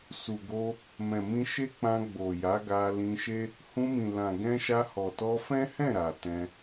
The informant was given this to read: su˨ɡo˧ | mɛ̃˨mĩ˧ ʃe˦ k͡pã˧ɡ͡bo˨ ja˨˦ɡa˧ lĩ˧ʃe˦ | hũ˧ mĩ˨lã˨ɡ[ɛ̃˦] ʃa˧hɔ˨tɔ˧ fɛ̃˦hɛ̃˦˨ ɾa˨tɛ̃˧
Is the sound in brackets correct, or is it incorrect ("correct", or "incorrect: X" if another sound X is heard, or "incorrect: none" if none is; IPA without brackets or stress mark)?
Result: incorrect: ɛ̃˧